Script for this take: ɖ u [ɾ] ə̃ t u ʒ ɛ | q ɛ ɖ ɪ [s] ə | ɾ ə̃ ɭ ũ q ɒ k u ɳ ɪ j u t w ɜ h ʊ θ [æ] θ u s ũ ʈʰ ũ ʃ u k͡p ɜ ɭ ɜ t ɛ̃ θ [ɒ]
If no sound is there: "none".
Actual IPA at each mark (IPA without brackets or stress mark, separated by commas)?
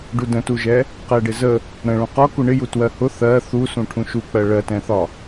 d, z, ɜ, ɒ